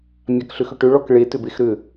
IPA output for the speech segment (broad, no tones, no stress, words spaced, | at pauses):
mʲakɬʏxʏʈʏ ɭɔkɭe tʏbexɾʏ